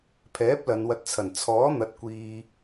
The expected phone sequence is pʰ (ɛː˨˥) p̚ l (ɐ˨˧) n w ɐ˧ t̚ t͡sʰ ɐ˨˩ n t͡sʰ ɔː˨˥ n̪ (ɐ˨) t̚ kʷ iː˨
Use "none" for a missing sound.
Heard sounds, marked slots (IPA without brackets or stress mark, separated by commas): ɛː˨˥, ɐ˨˧, ɐ˨